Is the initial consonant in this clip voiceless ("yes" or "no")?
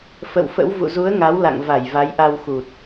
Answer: yes